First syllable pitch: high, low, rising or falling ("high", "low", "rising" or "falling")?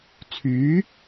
rising